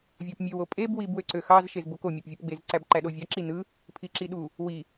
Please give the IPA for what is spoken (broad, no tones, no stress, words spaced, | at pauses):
vʲɑpmʲøw opʼeb wibwøǀøxɑz ʃezboko mʲæpvʲopɡ͡bez ǀæbǃæɗovʲɑ ǁinɯ | pʰiǁiɗu | wi